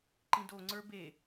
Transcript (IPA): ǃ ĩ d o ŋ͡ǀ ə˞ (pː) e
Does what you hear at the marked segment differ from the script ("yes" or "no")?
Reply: yes